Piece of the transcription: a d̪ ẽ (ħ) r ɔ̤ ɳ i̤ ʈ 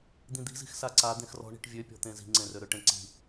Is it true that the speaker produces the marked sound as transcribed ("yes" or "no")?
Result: no